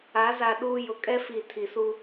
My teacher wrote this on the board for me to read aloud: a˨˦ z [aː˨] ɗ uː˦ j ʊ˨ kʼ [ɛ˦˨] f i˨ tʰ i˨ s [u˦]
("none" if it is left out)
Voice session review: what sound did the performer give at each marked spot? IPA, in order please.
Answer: a˨, ɛ˦, u˦

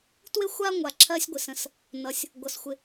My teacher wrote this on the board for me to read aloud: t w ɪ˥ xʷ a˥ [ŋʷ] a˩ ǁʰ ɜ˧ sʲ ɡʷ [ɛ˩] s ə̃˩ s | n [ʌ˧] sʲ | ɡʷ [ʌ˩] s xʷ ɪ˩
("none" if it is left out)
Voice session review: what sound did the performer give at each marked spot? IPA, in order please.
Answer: ŋʷ, ɪ˩, ʌ˩, ʌ˩

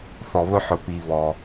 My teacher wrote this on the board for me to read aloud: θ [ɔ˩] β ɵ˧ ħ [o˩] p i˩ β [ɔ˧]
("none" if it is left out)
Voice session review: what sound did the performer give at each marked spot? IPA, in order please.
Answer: ɔ˩, ɵ˩, ɔ˩

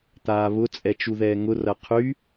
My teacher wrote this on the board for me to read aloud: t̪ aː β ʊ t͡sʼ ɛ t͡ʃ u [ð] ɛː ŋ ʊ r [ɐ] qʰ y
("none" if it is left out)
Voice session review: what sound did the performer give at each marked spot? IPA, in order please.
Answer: ð, ɐ

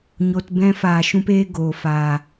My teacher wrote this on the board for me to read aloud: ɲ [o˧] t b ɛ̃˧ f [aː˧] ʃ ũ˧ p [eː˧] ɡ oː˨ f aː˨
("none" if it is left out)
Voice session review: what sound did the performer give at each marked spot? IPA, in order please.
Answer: o˧, aː˨, eː˧

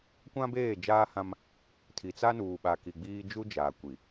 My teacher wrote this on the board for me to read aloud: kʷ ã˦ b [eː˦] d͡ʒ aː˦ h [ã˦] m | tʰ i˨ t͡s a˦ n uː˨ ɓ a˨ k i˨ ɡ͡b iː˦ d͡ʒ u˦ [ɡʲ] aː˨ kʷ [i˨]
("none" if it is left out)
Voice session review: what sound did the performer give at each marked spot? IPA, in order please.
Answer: eː˦˨, ã˦, d͡ʒ, i˨

